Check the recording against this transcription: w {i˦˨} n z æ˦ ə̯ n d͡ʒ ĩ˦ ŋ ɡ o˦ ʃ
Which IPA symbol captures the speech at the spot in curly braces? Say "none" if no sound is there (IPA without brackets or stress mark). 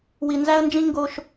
i˨